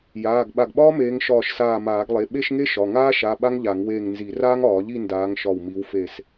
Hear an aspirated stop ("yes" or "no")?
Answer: no